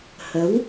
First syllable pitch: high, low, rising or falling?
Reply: rising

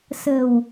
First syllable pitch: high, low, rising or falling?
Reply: low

